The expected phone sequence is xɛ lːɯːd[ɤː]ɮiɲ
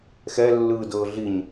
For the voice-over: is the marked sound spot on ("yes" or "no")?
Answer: yes